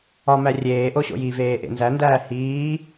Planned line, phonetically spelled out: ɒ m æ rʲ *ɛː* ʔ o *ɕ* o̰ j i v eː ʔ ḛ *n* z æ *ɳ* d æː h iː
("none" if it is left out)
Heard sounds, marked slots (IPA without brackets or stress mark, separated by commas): eː, ɕ, n, n